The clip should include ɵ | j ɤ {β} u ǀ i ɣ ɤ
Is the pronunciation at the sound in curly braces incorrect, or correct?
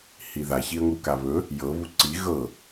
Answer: correct